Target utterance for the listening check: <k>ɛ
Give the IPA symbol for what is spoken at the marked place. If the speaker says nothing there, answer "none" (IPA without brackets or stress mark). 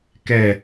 k